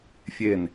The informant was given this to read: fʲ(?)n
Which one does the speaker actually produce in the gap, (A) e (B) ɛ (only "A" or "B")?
A